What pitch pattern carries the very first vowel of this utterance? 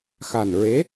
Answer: low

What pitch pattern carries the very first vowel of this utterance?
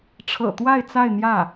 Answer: low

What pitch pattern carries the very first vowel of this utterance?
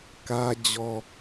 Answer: high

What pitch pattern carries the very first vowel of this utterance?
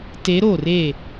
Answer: rising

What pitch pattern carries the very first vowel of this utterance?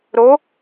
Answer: rising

